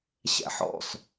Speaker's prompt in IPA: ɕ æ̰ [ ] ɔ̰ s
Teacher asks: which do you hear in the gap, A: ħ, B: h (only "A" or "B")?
A